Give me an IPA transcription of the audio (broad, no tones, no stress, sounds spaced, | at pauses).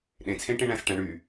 ɗ ẽ t͡sʰ ẽ ʈ ẽ ɳ æ̃ s ʈ æ̃ ɳ y